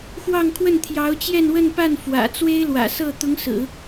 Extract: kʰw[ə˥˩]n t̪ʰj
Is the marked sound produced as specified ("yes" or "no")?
yes